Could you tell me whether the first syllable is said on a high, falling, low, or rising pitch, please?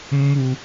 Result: low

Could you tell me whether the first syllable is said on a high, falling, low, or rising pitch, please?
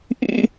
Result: high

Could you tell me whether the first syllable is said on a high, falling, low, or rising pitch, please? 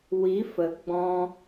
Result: rising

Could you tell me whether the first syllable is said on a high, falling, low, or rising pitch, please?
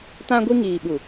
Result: high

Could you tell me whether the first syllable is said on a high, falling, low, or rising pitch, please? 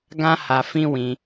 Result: high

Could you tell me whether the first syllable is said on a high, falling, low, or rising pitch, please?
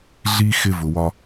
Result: high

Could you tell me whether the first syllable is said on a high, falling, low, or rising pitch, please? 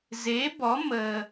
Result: rising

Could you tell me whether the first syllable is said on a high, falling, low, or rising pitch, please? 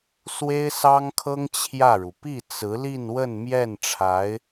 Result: high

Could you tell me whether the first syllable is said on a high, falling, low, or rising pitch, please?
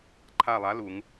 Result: falling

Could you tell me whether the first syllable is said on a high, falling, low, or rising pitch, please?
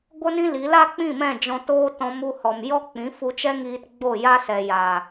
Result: high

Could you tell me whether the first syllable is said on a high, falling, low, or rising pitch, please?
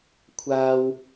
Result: high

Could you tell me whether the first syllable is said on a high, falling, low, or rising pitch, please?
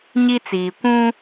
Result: high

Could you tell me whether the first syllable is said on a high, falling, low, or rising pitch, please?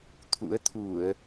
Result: rising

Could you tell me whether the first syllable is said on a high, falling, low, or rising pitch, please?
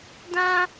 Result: high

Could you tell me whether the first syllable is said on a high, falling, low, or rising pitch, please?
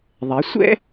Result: rising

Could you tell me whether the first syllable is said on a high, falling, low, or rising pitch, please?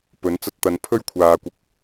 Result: rising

